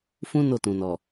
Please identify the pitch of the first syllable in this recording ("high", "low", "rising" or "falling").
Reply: high